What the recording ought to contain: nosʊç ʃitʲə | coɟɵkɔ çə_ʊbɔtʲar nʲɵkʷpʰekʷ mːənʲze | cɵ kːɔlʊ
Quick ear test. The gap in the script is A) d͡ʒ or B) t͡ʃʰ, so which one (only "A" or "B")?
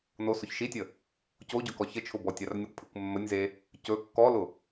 B